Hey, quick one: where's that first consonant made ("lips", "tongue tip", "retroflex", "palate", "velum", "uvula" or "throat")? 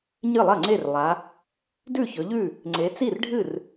palate